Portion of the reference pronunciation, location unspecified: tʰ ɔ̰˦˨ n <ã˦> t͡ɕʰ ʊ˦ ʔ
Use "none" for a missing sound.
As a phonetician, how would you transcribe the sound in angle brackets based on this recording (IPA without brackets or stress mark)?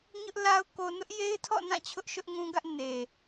ã˦˨